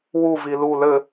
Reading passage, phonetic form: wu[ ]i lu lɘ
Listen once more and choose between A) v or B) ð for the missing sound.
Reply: A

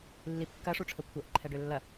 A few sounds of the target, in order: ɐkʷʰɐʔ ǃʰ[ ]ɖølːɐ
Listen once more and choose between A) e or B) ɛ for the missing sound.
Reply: B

